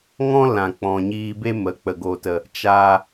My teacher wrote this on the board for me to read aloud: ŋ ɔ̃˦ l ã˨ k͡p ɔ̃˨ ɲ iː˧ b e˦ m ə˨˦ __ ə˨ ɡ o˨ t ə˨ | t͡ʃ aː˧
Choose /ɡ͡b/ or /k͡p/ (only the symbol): k͡p